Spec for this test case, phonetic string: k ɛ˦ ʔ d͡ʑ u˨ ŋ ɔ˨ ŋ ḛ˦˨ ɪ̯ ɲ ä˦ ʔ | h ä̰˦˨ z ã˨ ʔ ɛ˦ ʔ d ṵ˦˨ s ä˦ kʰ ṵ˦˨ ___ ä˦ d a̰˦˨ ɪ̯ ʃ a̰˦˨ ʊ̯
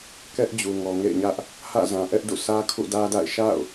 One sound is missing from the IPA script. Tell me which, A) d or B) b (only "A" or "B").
A